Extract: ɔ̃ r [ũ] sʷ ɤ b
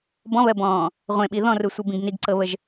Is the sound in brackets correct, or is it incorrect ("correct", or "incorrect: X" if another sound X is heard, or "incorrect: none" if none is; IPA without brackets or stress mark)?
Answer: incorrect: u